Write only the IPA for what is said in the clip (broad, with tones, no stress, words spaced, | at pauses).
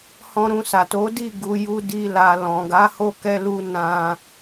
hɔ̃˧ɾũ˧sa˨ to˨˦di˦˨ ɡu˧ ju˧di˧ la˨ lɔ̃˨ɡa˨˦ ho˦˨kɛ˧lu˧ nã˧